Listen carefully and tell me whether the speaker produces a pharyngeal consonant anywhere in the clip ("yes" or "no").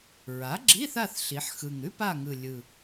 yes